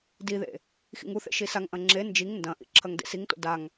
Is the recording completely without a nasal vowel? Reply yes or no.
no